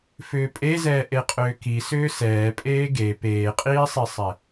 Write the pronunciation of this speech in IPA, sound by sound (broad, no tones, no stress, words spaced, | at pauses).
fʏːpʼezɛː ʔeqʼʏːki sʏːsɛː pʼeːɡe peːqʼiːsˤisˤɛ